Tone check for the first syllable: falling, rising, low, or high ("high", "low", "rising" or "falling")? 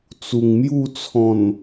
low